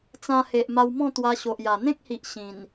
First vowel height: low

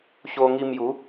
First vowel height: mid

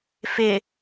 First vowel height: high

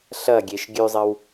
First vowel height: low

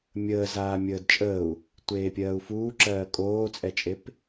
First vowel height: mid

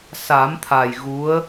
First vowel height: low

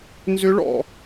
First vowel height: high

